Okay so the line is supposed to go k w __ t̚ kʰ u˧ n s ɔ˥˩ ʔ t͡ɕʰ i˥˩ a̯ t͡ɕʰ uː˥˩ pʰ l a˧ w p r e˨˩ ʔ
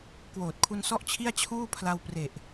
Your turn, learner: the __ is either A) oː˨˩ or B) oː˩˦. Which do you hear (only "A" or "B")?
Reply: A